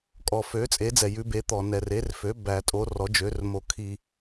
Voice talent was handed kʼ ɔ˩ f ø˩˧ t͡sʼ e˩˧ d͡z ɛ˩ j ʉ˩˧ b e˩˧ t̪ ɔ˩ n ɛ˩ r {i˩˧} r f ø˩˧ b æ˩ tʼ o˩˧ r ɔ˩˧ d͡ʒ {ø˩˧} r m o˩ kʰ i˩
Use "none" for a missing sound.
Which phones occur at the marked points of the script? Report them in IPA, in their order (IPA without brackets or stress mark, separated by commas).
e˩˧, ø˩˧